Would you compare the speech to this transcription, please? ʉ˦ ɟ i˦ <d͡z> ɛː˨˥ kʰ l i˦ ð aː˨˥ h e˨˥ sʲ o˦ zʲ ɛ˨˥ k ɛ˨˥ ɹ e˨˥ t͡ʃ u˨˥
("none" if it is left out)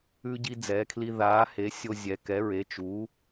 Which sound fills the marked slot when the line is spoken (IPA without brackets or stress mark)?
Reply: d͡z